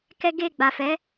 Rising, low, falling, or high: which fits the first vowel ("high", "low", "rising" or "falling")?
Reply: high